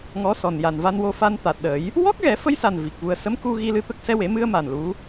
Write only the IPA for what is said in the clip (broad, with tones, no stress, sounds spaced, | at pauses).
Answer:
ŋ ɔ˧˥ s ɔ˨˩ n j a˨˩ n v a˧ n w o˧ f a˧ n t̪ a˨˩ t̚ ɗ ə˨˩˦ j | w ɔ˦˥ k̚ ɣ ɛ˨˩˦ f ə˧ j s a˨˩ n v i˨˩ k̚ v u˧ ə̯ s ə˧˥ m k u˧ ɣ i˧ l ɨ˧ t̪ ə˦˥ k̚ s ɛ˧ w e˨˩˦ m ɨ˧ ə̯ m a˨˩ n l u˧˥